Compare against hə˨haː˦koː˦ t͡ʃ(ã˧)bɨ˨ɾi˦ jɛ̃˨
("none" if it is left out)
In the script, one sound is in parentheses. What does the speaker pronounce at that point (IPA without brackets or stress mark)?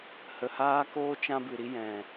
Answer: ã˦